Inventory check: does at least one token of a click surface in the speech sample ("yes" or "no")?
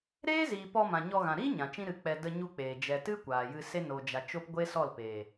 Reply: no